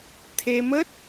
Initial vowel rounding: unrounded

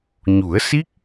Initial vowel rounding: rounded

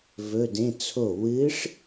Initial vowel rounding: rounded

